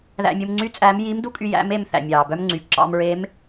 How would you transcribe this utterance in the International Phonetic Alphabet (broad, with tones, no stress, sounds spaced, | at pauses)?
ð æ̰˧ mʲ u˧ m ŋ͡ǀ yː˥ t͡sʼ æː˧˥ m j i˧˥ m d u˥ kʼ y˧ j æ̰˧˥ m e˧ m θ æ̰˩ mʲ ɑː˩ b œ˥ m ŋ͡ǀ y˩˧ ǁ ɑ̰˧ m ɹ e˧˥ m